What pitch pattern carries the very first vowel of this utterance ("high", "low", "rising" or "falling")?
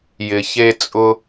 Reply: low